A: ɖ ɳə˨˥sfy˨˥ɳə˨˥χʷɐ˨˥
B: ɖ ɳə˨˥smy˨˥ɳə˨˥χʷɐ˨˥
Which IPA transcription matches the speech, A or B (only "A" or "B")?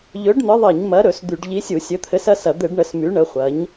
B